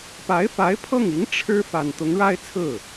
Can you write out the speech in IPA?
pa˧˥ɪ̯fa˧˥ɪ̯pʰɤ˥˩ŋi˧˥ŋ ʈ͡ʂʰɻ̩˥ fa˨˩n t̪ʊ˧˥ŋɻa˥ɪ̯ t͡sʰɹ̩˥˩

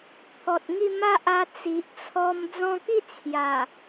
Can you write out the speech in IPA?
t̪ʰɔ˨t̚ŋi˥˧ ma˦ʔa˧ t͡si˨ʔt͡sʰɔ˧m d͡zɔ̃˧ki˥˧ t͡sʰja˨˩

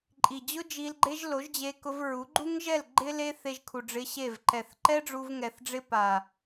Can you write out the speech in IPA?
ǃʼi˨d͡ʑʊ˦ d͡ʒi˧lɡ͡ǃe˦ʒ lo˨˦ʒd͡ʑe˧kʊ˧vɹu˨˦ ɡ͡ǃu˦ŋʒɛ˦˨l ɡ͡ǃɪ˦le˦ θe˧ʒkʰu˨ɖ͡ʐɪ˧ ɕe˦˨v ǃɛ˨θǃɛ˦ ɖ͡ʐu˧vŋɛ˨θɖ͡ʐɪ˦ pa˨

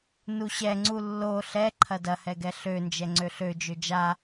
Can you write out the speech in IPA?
nuɕɛŋ͡ǀu lːo ɬɛ ǃʰɐdɐhɛ ɡɛɬønd͡ʒɛ ŋ͡ǀøɬød͡ʒø d͡ʒa

